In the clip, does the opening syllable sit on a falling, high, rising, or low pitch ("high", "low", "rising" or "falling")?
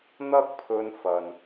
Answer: high